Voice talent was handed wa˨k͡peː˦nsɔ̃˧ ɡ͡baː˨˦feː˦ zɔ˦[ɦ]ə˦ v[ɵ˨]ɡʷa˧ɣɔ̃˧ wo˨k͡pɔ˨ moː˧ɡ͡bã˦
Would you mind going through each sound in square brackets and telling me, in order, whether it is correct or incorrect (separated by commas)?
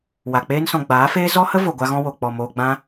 incorrect, incorrect